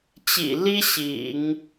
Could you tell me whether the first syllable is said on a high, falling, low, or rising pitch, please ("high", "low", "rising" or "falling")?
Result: low